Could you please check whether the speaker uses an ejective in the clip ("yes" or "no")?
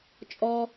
yes